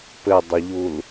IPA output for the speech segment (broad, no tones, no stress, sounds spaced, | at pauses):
p ɘ dˤ ə ʎ u l